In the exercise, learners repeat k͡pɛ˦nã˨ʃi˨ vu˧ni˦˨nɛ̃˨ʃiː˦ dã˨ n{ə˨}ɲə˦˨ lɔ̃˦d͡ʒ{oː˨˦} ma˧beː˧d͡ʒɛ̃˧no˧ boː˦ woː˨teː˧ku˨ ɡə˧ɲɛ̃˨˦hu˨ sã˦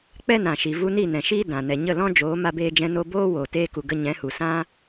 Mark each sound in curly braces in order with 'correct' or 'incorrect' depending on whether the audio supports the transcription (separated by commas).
incorrect, correct